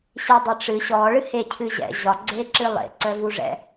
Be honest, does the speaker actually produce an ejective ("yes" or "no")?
no